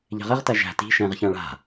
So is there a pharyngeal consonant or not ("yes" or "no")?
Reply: no